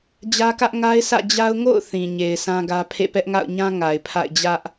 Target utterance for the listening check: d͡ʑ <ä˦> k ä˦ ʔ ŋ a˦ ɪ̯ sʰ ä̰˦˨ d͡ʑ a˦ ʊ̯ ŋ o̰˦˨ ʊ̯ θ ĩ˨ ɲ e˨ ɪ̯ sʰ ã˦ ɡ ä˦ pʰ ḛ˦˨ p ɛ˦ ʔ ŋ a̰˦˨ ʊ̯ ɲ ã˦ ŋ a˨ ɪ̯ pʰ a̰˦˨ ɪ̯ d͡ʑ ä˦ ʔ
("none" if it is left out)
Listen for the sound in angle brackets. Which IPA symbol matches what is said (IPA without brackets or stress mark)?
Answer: ä˦